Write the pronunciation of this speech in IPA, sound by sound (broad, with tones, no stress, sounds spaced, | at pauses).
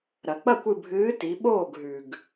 ɾ ɐ˩ k͡p ɐ˥˩ kʷ ɨ˧˩ bʱ ɨː˨˥ t i˩˧ ɓ oː˥˩ ɡ ɦ ʉ˩ ɡ